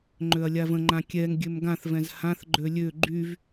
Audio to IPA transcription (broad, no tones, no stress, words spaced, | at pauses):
ŋ͡ǃøɐ̯lʲavə̃ŋ͡ǃã kʲɛŋ ɡʲømɡãθvɛ̃z hãθɡ͡ǃø lʲø ɡ͡ǃyv